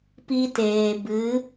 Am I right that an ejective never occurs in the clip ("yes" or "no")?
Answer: yes